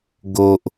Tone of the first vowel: high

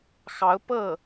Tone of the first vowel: rising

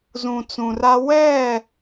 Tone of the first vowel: low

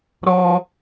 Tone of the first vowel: high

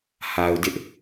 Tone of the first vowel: low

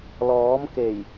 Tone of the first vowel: rising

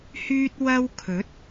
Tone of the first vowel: high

